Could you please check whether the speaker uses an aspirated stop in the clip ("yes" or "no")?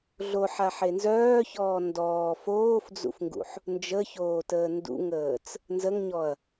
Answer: no